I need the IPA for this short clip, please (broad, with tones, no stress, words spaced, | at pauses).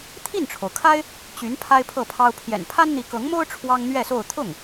t̪ʰi˥˩nʈ͡ʂʰo˩ʊ̯kʰa˥ɪ̯ | t͡ɕy˧˥n pʰa˥ɪ̯pʰɤ˥˩pʰɑ˥ʊ̯ pʰjɛ̰˨˩n pʰa˥nn̪i˧˥kɤ˧˥ŋmo˥ʊ̯ ʈ͡ʂʰwɑ˥ŋn̪ɥɛ˥˧so˥˧ʊ̯ t̪ʰʊ˥˩ŋ